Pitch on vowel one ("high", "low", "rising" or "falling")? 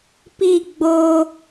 falling